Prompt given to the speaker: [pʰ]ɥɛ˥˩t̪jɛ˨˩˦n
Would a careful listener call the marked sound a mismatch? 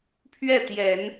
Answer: no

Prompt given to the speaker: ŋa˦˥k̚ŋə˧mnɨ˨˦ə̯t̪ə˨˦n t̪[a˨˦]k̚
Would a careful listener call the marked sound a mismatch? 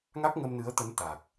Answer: yes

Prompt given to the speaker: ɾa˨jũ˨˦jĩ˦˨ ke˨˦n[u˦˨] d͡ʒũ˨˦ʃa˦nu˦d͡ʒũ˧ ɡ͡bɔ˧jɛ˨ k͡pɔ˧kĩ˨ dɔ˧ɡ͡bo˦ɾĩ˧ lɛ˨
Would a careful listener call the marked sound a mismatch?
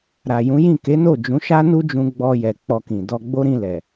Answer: yes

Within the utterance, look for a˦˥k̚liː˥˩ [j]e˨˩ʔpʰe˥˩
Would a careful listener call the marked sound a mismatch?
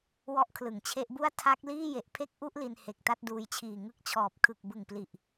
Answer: no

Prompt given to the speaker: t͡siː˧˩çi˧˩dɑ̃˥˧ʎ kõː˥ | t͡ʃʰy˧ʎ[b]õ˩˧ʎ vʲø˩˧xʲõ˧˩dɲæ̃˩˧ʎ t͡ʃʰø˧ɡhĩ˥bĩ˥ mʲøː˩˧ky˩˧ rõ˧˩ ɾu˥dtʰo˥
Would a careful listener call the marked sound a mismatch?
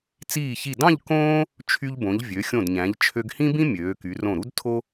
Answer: no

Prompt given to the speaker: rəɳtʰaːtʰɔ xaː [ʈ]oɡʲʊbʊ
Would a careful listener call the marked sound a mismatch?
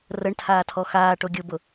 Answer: no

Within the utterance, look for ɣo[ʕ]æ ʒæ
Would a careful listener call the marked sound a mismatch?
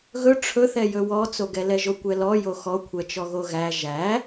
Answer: yes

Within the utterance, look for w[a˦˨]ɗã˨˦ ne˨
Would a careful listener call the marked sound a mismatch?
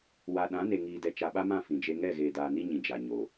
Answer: yes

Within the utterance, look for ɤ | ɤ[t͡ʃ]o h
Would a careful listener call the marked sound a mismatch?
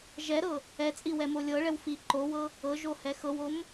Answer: yes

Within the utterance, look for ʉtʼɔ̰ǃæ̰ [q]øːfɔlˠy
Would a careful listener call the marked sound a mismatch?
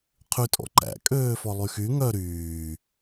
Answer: yes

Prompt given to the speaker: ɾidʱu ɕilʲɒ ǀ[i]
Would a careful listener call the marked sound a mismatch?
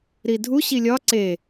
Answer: yes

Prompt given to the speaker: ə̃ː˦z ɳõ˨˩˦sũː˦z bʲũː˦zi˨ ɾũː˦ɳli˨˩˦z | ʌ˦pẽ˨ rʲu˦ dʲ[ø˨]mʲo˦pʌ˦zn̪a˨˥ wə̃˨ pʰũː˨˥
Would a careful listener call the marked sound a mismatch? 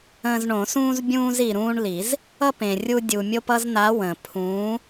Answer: yes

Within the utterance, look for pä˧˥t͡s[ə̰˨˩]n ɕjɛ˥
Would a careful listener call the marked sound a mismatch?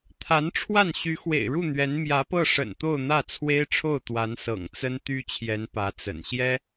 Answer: no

